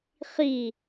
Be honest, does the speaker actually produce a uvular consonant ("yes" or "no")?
yes